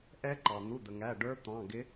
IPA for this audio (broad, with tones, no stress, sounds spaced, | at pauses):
ʔ ɛ˦˥ ǃ ɑ˩ n̪ u˩˧˩ d̪ ə˩ ŋ æ˩˧˩ ɖ ə˞˦˥ t̪ ɑ̃˩˧˩ ɡ ɪ˨˥